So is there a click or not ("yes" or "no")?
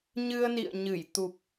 no